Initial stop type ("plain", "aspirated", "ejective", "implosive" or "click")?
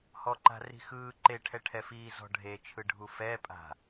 click